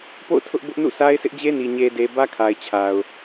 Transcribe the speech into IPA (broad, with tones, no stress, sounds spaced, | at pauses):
p o̰˦˨ ʊ̯ tʰ ʊ˦ ʔ b ʊ˦ ʔ n ṵ˦˨ s a˦ ɪ̯ s ɪ˦ ʔ d͡ʑ e˦ n i˨ ɲ e˨ d e˨ b ä˦ kʰ a˨ ɪ̯ t͡ɕʰ a˨ ʊ̯